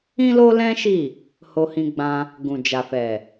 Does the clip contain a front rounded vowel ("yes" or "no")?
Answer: no